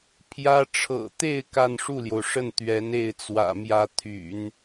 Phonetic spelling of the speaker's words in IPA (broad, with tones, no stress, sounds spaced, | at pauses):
pʰ j ä˥ ʈ͡ʂʰ ɤ̰˨˩ t̪ e˥˧ ɪ̯ k a˥˧ n ʂ u˥˩ l j o˩ ʊ̯ ʂ ə˥˩ n t̪ ɥ ɛ˧˥ n e˥˩ ɪ̯ t͡s w ä̰˨˩ m j ä˥ t̪ʰ y̰˨˩˦ n